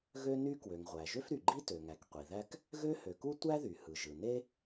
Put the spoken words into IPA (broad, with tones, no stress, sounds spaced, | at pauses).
ɣ ø˥ n y˥ k w ø˩ ŋ ʁʷ æ˩ ʒ ø˥ f ɾ y˩ ɡ͡ǃ i˥ t ø˩ ŋ æ˩ k qʷ i˩ ð æ˥ k | ɣ ø˥ h ø˩ k u˥ tʷ æ˥ ð y˩ h ɯ˩ ʒ ɯ˩ n e˥